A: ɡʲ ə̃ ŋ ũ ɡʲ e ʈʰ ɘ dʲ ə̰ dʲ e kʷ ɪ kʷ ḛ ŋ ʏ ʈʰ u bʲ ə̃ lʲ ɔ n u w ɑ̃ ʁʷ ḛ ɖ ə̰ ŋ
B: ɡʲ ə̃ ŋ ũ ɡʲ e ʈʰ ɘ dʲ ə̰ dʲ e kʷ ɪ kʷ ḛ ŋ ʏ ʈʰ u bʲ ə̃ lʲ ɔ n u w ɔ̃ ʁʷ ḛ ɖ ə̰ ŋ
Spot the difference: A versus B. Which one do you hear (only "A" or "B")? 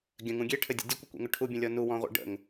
B